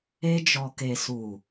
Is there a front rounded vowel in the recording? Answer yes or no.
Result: no